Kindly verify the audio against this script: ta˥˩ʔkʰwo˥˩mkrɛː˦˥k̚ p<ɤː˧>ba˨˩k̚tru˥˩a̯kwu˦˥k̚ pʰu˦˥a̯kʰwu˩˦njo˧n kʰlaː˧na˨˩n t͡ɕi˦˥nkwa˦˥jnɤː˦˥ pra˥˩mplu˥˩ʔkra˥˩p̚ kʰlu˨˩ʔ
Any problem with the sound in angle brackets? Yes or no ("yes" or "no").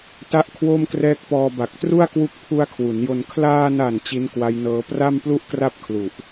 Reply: yes